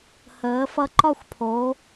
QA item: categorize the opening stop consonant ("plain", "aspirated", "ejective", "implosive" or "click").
click